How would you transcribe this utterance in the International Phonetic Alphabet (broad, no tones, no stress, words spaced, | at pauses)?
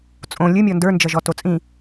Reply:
t͡sʼõ lʲɨmʲɔ ndə˞nd͡ʒʌʒɔ tot͡sʼĩ